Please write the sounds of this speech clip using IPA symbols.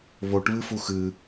β o ʈ β ɨ f u x ɨ

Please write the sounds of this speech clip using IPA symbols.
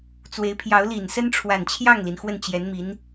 t͡s w e˧˥ ɪ̯ pʰ j ɑ˧˥ ʊ̯ l i˨˩ n s ə˥ n ʈ͡ʂʰ w a˨˩ n t͡ɕʰ j ɑ˥˩ ŋ l i˩ n x w ə˥˩ n t͡ɕ j ɛ˧˥ n m i˧˥ n

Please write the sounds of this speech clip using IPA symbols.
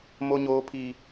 m o˦ ɲ oː˦ pʰ i˦

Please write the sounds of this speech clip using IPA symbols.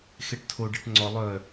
x e ʈ tʰ o ɖ ɛ ʈ ŋ͡ǀ ɔ lˠ œ

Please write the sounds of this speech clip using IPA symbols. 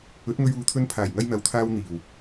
ɵ˨˥ t̚ ŋ ɵ˧ ɥ uː˨˧ t̪ʰ ɵ˧ n pʰ aː˨˩ j ŋ ɐ˧ j n̪ ɐ˨ w t̪ʰ aː˧ w n̪ iː˨˩ w

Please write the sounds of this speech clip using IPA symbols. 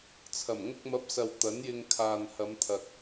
t͡sʰ ɐ˨˩ m ŋ ʊ˧ k̚ m ɐ˨˥ p̚ s ɐ˨ w t̪ ɐ˨˥ n j ɪ˧ ŋ kʰ aː˨ n h ɐ˨˧ m t̪ʰ ɐ˨ k̚

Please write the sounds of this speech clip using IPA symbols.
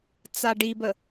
t͡s a ɖ i b ə

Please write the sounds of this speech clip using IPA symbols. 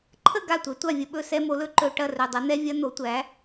ǃʰ ə˥˩ ɡ a˥˩ tʷ ɛ˩˥ tʷ a˥˩ vʲ ə˦ ɓ ɵ˥˩ s ɛ˦ m o˩˥ l ɵ˩˥ ǃ ɵ˧˩˧ ʈ ɐ˥˩ r ɵ˩˧˩ dˤ ɐ˩˥ n̪ ɛ˦ vʲ ɐ˦ n̪ o˩˥ tʷ æ˩˥

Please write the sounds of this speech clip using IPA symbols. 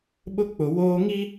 ɓ ʊ˦ k͡p ʊ˨ w oː˦ ŋ i˦

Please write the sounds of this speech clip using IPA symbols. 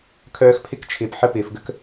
kʰ œː˦ x pʰ ɪ˥ k t͡ʃʰ ɪː˨ p ħ ə˦ p ɪː˨ f ɡ ə˥ k

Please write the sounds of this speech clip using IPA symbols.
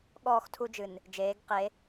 ɠ ɔː˦˨ x tʰ u˦ d͡ʒ ɨ˨ n | d͡ʒ eː˨˦ ɡ q e˨˦

